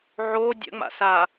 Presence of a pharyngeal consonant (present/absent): present